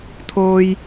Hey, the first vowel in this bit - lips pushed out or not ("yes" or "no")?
yes